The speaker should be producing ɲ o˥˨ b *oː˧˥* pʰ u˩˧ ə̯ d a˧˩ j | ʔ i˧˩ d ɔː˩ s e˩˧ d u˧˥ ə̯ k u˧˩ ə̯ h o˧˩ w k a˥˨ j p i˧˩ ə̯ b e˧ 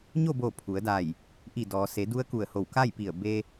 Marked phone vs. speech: incorrect: oː˧˩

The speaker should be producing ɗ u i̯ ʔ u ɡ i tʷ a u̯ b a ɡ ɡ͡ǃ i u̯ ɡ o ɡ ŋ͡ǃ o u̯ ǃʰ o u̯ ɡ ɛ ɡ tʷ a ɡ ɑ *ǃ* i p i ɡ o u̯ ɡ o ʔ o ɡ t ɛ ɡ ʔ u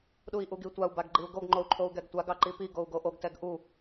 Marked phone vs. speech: correct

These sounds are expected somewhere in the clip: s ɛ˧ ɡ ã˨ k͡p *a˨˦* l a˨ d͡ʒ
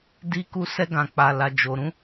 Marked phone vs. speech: incorrect: a˨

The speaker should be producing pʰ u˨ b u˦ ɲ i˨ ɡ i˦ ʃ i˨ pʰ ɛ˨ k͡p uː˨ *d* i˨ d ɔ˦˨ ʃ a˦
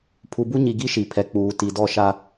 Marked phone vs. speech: incorrect: t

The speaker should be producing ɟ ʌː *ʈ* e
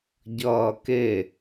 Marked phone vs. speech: incorrect: k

